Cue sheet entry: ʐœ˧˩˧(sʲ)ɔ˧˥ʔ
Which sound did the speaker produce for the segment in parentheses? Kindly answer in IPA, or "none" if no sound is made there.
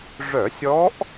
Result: sʲ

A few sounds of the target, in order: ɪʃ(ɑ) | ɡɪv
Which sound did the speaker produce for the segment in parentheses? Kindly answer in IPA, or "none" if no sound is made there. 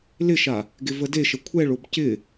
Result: a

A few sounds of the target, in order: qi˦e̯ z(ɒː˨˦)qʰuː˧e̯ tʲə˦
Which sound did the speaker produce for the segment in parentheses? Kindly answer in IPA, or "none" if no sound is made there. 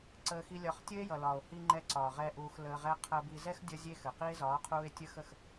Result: ɒː˨˦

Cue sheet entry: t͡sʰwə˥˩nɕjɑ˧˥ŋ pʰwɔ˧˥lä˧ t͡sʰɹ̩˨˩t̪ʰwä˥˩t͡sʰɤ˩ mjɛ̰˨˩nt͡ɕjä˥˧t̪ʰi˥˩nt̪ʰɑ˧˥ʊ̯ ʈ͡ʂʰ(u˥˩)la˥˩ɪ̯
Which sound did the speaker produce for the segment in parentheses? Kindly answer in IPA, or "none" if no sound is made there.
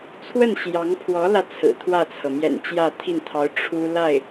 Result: u˥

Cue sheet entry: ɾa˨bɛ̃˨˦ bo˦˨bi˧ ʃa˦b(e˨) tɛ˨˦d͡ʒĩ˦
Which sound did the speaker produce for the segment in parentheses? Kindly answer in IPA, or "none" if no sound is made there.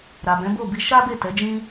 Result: e˦˨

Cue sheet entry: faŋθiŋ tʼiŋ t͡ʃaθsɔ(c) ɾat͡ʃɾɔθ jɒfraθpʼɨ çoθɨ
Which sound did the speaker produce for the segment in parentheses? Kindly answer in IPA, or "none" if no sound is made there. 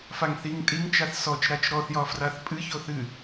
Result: t͡ʃ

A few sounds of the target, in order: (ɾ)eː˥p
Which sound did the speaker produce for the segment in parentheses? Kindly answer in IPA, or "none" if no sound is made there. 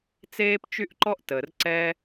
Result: t͡s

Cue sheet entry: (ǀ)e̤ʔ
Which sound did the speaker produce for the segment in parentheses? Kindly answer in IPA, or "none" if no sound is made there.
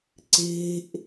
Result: ǀ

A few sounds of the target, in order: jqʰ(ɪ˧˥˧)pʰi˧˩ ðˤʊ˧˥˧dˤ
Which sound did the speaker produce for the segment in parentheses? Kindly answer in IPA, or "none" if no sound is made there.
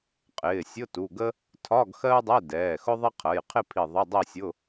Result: ɪ˥˧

